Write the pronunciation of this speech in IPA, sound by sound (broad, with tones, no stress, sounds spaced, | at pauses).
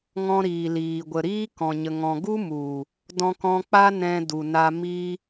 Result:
ŋ ɔ̃˧ ɾ iː˨ l iː˨ ɡʷ ə˨ ɾ iː˦ k ɔ̃˨ ɲ ə˨ ŋ ɔ̃˨ ɡ u˦ m u˨ | d ɔ̃˧ k ɔ̃˧ k͡p a˦ n ɛ̃˧ d u˨ n a˧ m i˧